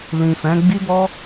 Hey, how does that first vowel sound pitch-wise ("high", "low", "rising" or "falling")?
low